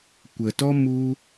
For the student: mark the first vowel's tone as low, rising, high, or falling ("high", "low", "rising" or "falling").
low